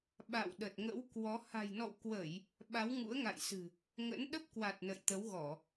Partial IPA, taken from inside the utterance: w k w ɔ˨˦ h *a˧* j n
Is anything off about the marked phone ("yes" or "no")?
yes